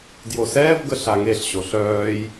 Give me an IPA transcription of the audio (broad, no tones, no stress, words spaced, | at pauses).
djosɛːvɡə ɬaŋeɬɕo ɬœːj